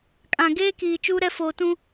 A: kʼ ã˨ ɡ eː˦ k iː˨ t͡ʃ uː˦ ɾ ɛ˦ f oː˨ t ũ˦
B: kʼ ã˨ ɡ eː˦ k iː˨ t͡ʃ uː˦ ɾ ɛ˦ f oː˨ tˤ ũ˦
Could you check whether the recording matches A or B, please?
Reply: A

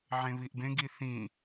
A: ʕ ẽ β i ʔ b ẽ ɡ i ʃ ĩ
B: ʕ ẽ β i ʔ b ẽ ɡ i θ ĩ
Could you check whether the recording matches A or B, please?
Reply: B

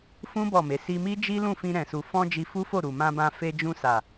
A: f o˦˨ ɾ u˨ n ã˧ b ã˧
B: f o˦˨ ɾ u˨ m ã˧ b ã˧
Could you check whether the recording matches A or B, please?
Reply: B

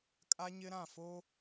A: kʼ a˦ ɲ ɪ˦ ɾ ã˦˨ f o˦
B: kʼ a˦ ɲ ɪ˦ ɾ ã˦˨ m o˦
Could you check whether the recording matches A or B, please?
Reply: A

